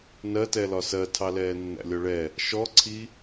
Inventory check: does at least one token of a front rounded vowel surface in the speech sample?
no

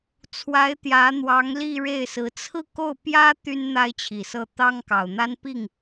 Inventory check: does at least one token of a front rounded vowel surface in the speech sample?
yes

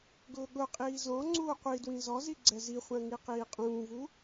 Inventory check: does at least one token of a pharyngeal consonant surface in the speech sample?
no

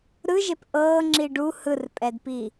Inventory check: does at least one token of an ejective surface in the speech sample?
yes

